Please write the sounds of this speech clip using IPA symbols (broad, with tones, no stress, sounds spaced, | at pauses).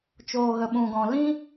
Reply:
t͡ʃ oː˨ ɣ ə˨ ɓ ũ˨ ɡ ɔ̃˨ l ĩ˦